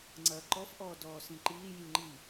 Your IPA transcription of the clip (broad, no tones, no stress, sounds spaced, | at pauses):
ŋ͡ǀ ɐː ǃ ɔ f ʔ ɔː d ɔː s ĩ ǃ iː j ĩ ŋ͡ǃ i